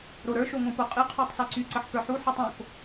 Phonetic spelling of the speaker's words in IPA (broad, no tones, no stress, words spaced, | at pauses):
ɾoɾə˞ʃo ŋõpoqʼɨqʰytˤ sə˞ǀyǀəħ kə˞ħuħɨ tˤõk